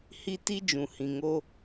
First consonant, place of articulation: glottal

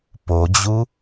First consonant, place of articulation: labial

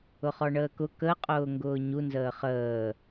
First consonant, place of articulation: uvular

